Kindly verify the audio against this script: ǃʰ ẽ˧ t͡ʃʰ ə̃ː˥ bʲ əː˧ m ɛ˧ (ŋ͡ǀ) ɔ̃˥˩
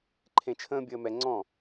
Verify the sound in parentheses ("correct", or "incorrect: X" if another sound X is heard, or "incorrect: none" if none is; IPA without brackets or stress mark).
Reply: correct